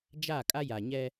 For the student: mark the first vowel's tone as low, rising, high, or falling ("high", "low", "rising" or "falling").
falling